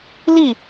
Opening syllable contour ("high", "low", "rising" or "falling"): falling